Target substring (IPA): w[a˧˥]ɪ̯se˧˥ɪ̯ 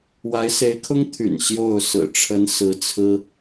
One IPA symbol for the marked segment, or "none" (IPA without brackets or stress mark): a˧˥